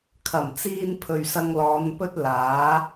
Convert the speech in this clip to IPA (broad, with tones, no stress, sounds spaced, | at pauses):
kʰ ɐ˨˩ m t͡s iː˧ n pʰ ɵ˨ ɥ s ɐ˧ ŋ l ɔː˨˧ n p ɵ˥ t̚ l aː˨˥